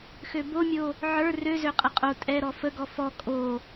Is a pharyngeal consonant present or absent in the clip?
present